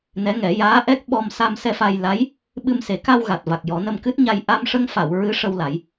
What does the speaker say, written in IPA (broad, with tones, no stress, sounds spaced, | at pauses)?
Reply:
n ɛ˧˥ ŋ ɛ˨˩˦ j aː˧˥ ʔ ɛ˦˥ k̚ ɓ ɔ˧ m s a˧ m s ɛ˧ f a˧ j l a˧˥ j | ɓ ɨ˧ m s e˨˩˦ k a˧ w ɣ a˨˩ t̚ v a˨˩ k̚ j ɔ˨˩˦ n ə˧ m k ɨ˦˥ t̚ ɲ a˧ j ʔ a˧ m ʂ ə˧ ŋ f a˨˩˨ w ɹ ɨ˧˥ ʂ ə˧ w l a˨˩˦ j